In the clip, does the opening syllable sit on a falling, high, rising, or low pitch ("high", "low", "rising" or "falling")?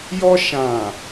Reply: high